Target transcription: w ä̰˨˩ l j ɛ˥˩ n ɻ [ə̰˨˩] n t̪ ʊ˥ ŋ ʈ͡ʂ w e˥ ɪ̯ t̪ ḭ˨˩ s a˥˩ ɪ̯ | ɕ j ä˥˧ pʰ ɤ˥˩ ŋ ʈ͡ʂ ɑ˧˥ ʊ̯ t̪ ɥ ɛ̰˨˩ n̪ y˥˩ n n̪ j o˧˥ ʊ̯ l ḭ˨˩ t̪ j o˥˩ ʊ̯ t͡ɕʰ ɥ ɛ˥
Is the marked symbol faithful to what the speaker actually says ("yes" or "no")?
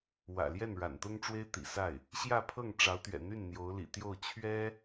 no